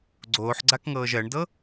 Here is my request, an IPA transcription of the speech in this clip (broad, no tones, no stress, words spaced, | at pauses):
ɡ͡ǀoːħɡ͡ǀakŋɤːʒ ɜɳdɤ